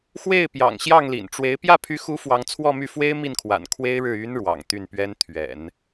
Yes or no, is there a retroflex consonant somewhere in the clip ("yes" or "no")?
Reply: yes